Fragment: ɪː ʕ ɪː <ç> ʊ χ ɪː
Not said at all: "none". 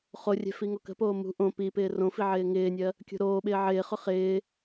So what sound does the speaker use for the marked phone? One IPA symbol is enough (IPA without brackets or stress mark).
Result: χ